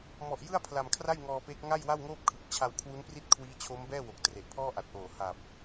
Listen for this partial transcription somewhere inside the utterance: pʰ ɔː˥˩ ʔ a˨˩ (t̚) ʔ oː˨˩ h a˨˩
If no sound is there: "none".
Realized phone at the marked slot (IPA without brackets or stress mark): t̚